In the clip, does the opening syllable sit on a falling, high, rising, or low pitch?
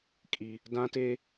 high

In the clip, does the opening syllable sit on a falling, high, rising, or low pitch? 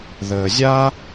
low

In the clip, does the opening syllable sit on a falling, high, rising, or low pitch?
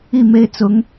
falling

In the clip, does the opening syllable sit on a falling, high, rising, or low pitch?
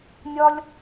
high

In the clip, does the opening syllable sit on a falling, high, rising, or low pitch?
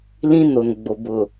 high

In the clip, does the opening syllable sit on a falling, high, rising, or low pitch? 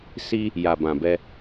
high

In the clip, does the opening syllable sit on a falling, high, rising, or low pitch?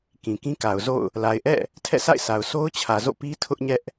low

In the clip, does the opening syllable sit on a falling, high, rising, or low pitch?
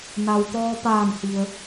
low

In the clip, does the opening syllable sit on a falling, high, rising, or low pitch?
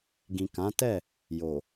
low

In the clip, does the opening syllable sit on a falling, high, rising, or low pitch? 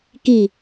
falling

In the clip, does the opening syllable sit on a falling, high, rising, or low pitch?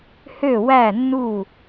falling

